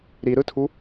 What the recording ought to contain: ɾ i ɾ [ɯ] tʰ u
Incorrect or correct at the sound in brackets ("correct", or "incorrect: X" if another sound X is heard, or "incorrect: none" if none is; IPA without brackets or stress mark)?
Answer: correct